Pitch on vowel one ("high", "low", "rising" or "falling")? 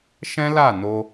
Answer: high